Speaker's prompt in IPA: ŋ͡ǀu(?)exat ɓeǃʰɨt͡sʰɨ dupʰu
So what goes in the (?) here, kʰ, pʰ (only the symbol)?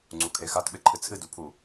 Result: kʰ